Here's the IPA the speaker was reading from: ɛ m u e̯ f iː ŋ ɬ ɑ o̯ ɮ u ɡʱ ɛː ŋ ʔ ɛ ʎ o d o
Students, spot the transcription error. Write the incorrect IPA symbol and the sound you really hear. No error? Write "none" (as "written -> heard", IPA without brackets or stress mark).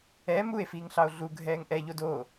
none